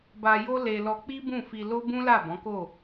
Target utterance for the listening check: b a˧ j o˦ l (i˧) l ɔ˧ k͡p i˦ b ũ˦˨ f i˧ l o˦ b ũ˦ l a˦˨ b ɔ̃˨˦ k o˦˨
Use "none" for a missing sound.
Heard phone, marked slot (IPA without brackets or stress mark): e˧